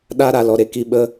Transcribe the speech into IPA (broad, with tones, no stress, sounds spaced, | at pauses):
ɗ a˦ ɾ a˨ l ɔ˨ ɾ e˨ k i˧ ɓ ə˦